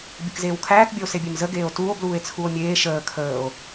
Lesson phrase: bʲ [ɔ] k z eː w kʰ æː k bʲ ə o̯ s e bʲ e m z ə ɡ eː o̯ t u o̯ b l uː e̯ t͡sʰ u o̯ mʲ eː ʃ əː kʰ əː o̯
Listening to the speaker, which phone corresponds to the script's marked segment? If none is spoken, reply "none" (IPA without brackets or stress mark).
ə